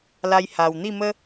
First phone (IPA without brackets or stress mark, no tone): l